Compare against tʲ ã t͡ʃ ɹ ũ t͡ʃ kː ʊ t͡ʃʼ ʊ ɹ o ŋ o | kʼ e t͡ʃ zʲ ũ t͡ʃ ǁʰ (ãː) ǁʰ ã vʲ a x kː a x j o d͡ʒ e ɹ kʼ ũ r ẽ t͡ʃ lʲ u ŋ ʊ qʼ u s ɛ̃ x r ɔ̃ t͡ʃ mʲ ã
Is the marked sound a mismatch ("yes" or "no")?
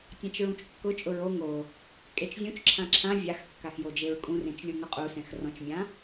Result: yes